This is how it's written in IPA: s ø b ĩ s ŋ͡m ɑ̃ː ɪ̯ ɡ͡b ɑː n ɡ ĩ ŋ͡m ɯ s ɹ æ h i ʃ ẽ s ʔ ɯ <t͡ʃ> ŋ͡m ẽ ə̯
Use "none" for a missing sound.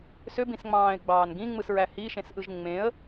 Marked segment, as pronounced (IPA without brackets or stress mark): ʒ